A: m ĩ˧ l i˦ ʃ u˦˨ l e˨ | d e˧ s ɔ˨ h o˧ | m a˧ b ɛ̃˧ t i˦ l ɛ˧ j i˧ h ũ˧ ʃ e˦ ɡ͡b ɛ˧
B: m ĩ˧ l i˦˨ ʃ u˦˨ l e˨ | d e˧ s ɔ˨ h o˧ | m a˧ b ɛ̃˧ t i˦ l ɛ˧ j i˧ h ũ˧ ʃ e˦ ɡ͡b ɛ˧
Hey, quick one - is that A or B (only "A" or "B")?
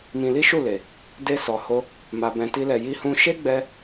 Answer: A